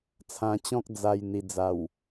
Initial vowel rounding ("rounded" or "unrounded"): unrounded